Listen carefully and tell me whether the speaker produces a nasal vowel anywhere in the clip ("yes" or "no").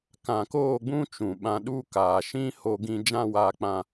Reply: yes